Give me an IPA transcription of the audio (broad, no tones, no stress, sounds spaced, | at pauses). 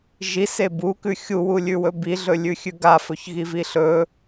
ʒ i s e b u k ʉ xʲ u w u lʲ ʉ w ɵ b i ɮ ɵ lʲ ʉ xʲ ʉ ɡ a f ɵ ç ɣ i v i ɬ ɵ